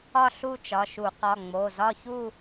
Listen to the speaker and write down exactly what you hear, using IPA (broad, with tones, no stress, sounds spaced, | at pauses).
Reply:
ɒ˥˧ ɬ u˥˧ t͡ʃ ɒ˩˧˩ ʃ u˧˩˧ q ɒ˩˧˩ ŋ͡m o˩˧˩ z ɒ˥˧ ç u˥˧